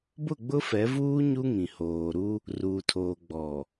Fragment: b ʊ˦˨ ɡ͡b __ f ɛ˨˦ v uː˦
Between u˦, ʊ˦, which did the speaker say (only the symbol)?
ʊ˦